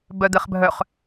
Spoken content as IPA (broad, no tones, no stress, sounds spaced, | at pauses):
b œ d̪ ɘ χ bʱ œ χ